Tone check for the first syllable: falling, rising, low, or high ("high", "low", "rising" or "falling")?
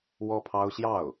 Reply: high